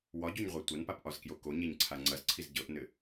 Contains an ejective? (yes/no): no